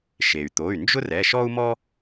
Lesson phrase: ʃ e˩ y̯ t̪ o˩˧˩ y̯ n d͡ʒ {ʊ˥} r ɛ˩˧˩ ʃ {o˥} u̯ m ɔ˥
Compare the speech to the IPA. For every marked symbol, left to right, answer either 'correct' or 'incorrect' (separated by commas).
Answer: correct, incorrect